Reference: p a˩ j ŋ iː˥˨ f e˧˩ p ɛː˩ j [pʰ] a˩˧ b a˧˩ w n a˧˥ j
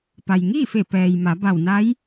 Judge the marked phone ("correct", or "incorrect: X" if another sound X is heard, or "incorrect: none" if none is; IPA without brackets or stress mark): incorrect: m